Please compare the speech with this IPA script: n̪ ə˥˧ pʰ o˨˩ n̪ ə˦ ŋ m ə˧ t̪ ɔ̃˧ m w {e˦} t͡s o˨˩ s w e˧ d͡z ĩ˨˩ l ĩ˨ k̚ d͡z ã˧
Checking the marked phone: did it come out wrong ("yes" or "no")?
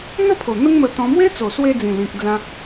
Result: no